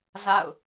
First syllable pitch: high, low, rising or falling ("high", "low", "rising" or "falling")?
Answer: falling